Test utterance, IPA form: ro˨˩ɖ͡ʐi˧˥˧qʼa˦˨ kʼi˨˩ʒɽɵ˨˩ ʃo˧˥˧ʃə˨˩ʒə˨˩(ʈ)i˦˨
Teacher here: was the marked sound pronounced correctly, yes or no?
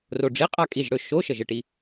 yes